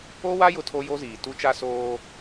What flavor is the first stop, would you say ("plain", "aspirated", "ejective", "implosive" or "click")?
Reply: aspirated